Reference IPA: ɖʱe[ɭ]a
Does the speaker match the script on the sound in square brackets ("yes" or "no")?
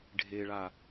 yes